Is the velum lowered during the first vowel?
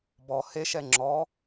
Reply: no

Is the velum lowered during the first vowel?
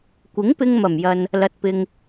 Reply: no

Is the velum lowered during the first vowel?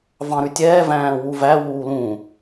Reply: yes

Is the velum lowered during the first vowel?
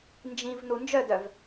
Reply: yes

